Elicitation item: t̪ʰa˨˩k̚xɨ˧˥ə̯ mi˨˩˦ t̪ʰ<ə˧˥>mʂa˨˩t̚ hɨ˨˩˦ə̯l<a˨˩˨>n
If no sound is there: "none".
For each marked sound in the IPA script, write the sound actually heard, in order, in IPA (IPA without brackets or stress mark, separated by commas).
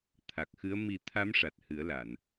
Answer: a˧˥, a˨˩˨